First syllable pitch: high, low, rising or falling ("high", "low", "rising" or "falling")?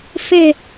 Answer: falling